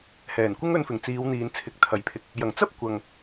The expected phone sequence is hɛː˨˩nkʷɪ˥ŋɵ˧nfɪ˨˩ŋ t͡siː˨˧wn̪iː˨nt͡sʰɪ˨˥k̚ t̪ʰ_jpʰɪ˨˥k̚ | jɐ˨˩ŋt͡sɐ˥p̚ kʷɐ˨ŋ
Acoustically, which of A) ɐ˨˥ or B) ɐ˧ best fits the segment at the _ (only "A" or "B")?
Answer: A